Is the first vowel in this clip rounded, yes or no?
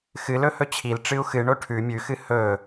no